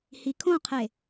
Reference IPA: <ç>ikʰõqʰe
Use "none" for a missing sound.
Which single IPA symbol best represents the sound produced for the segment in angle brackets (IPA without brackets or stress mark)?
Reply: h